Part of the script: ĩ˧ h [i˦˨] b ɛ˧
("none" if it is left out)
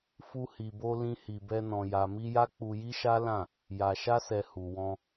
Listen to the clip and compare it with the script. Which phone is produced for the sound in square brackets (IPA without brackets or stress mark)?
i˨